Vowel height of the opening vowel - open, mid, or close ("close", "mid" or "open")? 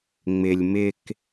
close